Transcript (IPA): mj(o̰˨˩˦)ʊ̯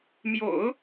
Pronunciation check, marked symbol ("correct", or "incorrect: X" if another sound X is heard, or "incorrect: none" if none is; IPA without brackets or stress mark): correct